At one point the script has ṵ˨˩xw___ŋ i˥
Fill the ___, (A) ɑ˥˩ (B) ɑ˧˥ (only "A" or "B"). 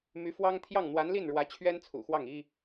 A